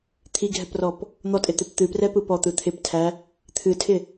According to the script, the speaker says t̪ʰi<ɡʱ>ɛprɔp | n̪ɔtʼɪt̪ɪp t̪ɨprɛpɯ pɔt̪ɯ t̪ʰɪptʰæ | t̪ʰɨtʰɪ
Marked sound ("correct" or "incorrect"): correct